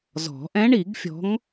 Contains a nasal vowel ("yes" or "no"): yes